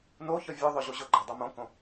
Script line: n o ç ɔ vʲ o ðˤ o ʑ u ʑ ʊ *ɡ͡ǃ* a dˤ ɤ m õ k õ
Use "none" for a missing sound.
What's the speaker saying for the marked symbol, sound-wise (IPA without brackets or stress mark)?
ɡ͡ǃ